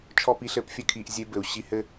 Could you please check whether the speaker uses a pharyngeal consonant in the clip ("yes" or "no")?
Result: no